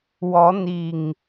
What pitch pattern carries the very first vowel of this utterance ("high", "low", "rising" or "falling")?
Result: rising